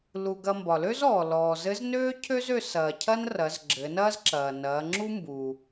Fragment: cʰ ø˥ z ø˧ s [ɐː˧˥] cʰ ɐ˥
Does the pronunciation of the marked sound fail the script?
yes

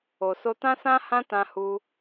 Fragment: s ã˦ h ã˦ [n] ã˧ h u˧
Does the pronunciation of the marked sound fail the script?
yes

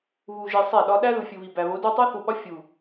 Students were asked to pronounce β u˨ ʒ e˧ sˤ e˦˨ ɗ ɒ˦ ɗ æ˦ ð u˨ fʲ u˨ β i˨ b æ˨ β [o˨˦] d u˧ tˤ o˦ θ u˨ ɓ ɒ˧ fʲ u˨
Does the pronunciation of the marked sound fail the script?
no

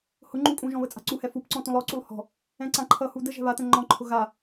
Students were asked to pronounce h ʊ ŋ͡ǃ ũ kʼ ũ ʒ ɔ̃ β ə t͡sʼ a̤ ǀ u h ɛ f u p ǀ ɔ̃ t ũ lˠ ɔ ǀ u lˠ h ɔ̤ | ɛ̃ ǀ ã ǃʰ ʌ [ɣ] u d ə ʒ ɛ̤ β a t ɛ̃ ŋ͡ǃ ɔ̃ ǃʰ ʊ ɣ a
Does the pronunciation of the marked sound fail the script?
yes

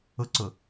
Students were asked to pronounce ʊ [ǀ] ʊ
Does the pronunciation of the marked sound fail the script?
no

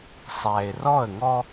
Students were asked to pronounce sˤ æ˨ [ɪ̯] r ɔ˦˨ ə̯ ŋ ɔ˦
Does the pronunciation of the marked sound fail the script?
no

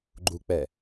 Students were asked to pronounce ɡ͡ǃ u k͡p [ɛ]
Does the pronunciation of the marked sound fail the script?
no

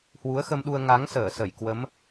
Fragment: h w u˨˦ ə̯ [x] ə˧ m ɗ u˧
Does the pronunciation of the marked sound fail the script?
no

